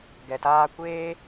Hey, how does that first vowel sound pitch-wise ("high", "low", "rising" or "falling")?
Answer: low